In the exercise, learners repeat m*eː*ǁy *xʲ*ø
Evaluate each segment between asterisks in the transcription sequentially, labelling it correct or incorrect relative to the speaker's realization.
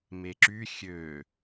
incorrect, correct

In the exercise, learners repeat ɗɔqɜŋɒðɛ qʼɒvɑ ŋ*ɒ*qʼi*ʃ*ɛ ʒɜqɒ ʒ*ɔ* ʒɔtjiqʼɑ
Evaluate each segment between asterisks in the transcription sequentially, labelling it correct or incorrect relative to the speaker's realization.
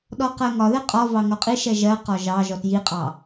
correct, correct, incorrect

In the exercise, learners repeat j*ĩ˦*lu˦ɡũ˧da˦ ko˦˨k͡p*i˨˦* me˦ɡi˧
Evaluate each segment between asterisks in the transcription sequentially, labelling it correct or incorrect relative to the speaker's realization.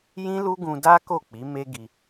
correct, correct

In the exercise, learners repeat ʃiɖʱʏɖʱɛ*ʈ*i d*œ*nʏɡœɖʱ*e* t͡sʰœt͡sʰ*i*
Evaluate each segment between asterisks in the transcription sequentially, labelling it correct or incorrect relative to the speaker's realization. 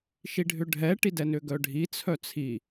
correct, incorrect, incorrect, correct

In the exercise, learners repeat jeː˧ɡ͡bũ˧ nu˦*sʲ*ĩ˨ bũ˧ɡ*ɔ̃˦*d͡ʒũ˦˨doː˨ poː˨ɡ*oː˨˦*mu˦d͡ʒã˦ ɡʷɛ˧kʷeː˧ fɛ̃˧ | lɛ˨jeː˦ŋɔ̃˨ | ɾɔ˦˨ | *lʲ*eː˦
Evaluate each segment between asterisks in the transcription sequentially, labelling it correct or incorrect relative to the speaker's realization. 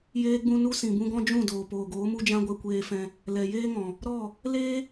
incorrect, correct, correct, incorrect

